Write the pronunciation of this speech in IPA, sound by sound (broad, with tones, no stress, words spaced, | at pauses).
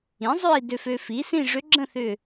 ĩ˩˥zˤø˥˧i̯ dø˧fø˧fi˩˥sĩ˥˧ ʐʏ˧˥ɡ͡ǁə̃˥˧θʏ˧˩